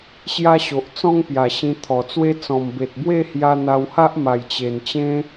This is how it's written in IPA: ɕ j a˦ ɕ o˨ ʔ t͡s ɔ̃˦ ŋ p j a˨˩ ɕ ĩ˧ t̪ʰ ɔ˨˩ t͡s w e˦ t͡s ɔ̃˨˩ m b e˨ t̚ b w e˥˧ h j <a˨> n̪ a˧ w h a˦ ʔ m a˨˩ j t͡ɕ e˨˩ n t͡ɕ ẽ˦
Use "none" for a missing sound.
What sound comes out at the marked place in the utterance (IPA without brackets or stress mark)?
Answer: a˧